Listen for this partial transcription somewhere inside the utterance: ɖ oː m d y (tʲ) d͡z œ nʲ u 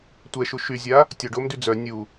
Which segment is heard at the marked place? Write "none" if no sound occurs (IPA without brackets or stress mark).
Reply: none